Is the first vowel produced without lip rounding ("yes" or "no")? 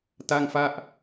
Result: yes